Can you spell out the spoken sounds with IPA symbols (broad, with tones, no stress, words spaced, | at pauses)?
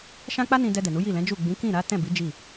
ʃã˦k͡pa˦nĩ˧ dɛ˧dɛ˨nu˨˦ ji˦˨lɛ̃˨˦d͡ʒu˦˨ ɡ͡bĩ˨˦kĩ˦˨ɾa˨˦ tɛ̃˦˨bi˨˦ d͡ʒi˦˨